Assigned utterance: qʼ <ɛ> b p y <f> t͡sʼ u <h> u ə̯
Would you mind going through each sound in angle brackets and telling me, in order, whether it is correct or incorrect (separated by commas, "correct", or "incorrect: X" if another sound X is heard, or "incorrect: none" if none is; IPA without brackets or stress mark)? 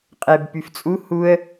correct, correct, correct